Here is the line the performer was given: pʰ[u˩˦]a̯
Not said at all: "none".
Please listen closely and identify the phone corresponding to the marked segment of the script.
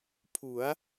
u˩˦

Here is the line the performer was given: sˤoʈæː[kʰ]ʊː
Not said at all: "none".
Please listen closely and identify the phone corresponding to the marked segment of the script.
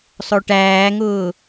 ŋ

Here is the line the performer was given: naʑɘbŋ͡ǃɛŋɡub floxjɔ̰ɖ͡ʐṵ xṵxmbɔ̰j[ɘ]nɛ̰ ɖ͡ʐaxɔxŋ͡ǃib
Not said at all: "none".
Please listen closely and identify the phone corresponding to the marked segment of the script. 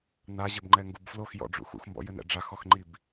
ɘ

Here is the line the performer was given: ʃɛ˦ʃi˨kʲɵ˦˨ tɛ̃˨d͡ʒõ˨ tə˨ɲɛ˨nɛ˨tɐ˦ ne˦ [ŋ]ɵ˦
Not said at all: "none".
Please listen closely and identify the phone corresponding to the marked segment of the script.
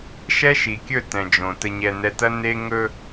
ŋ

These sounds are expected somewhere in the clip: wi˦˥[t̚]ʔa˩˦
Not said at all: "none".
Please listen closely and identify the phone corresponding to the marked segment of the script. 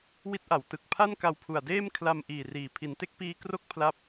t̚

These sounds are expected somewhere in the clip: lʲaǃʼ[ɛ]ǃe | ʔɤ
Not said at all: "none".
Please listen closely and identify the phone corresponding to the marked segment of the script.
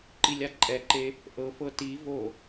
ɛ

